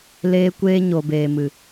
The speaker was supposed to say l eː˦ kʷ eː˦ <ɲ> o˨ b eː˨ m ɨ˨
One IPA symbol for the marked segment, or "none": ɲ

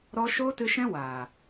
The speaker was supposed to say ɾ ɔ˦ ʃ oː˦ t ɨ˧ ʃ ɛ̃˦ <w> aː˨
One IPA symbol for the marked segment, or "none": w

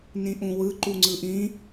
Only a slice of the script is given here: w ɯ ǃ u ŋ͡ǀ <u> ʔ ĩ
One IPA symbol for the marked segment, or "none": ɯ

